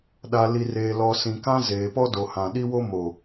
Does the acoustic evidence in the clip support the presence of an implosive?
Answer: yes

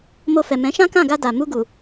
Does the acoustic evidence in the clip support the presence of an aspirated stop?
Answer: no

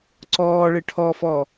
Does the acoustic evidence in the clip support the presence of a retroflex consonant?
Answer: yes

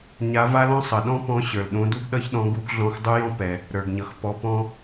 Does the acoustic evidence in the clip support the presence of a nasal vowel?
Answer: yes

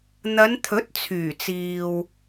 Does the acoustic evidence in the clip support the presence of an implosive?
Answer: no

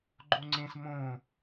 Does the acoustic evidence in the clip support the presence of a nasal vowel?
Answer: yes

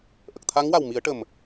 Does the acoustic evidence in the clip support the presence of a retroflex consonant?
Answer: yes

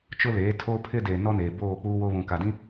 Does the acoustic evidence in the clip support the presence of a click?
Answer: no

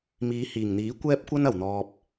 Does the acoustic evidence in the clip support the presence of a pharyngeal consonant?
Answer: no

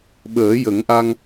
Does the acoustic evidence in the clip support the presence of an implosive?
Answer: yes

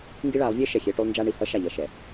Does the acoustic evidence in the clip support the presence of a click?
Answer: no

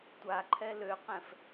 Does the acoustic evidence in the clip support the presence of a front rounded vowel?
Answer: yes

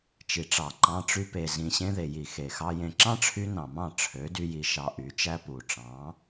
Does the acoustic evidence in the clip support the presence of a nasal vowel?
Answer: yes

